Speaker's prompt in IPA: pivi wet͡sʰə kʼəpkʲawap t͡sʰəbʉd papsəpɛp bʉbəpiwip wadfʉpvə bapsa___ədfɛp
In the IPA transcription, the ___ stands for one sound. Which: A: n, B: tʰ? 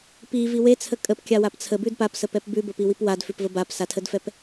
B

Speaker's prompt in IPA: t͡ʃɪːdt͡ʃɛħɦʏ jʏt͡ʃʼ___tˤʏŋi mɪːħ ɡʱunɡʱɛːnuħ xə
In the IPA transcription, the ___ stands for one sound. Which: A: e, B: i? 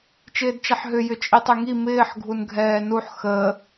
B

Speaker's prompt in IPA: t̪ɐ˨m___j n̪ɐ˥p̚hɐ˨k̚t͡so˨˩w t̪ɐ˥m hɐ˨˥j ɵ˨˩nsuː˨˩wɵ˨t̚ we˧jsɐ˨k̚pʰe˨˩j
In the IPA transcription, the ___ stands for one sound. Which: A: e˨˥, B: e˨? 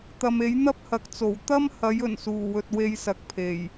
A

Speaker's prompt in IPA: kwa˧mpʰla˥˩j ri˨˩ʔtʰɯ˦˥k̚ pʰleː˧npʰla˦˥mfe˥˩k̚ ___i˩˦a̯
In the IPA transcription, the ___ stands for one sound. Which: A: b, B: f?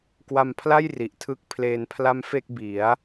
A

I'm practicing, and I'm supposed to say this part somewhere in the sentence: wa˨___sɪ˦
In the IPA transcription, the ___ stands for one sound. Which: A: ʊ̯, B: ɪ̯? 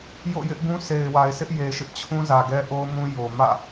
B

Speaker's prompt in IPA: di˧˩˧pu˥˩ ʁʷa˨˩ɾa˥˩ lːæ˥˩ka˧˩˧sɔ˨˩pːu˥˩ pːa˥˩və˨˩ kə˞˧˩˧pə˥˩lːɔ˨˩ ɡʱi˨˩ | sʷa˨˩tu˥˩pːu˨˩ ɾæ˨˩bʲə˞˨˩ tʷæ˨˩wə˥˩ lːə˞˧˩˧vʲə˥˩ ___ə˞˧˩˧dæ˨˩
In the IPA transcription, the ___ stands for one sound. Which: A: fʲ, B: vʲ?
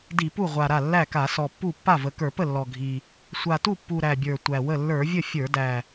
A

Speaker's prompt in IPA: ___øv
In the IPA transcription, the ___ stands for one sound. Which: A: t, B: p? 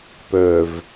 B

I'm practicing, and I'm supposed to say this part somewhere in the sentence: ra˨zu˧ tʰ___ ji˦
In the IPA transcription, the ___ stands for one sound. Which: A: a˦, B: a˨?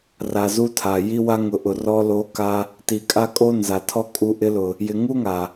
B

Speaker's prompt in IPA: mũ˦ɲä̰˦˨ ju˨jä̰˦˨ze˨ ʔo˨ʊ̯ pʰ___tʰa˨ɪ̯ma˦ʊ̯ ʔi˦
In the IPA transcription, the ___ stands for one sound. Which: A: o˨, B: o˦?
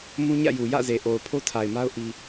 B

